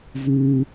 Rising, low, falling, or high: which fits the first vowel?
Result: high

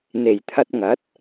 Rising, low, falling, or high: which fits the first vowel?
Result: low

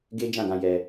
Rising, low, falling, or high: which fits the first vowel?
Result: high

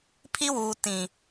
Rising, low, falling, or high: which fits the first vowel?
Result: high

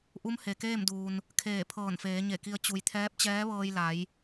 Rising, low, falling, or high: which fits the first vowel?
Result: rising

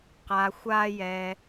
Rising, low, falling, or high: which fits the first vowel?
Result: low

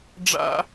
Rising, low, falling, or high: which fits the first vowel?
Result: high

